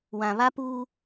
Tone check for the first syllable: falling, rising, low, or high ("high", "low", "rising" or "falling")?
low